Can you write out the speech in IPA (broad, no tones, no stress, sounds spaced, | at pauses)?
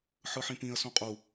ħ ɯ ħ ĩ p ĩ ə̯ s ũ qʼ u